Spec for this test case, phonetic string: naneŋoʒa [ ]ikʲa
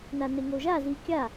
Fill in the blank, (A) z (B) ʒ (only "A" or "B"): A